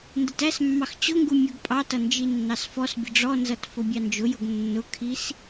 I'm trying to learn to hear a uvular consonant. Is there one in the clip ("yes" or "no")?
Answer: no